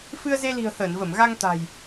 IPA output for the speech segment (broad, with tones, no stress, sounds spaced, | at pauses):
f ɨ˧ ə̯ z e˧ l i̤˨˩ ə̯ h əː˧˩ n v ə˧˩ m ɣ a˧ ŋ t̪ a̤˨˩ j